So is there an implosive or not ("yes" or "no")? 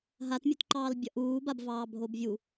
no